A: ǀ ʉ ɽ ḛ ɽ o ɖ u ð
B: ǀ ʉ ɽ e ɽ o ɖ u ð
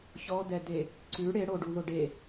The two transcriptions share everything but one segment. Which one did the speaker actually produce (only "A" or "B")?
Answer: B